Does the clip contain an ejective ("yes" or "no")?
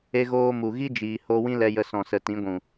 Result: no